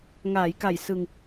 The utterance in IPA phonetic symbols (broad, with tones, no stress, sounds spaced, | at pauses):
ŋ aː˩˦ j k a˨˩ j s ɯ˧ ŋ